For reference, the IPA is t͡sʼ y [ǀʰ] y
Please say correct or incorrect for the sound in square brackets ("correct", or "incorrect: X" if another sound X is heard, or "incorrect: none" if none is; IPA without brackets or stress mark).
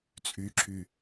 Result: incorrect: ǁʰ